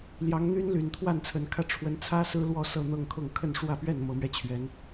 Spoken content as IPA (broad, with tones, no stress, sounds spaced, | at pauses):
l j ɑ˨˦ ŋ n̪ y˦ n l y˨˩ n t̪ʰ w a˥˨ n t͡sʰ ə˨˩ n kʰ ä˥˨ ʈ͡ʂʰ w ə˨˦ n t͡sʰ ä˦ s ɹ̩˦ l w ɔ˦ s ɤ˥˨ n̪ ɤ˥˨ ŋ kʰ ʊ˥˨ ŋ kʰ ə˥˨ n ʂ w ä˥˨ p ɥ ɛ˥˨ n m ɤ˨˦ m ɥ ɛ˧ t͡ɕʰ ɥ ɛ˨˦ n